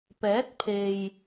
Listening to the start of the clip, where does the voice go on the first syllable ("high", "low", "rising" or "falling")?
rising